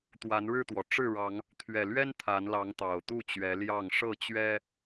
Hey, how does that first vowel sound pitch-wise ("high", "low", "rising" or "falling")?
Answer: rising